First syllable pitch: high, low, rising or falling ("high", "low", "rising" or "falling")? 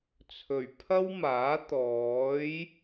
low